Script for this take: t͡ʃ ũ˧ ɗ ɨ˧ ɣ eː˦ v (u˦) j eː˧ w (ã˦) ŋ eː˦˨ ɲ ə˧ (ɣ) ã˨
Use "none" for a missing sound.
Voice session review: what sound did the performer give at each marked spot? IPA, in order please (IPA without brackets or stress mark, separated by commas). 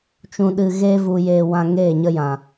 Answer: u˧, ã˧, j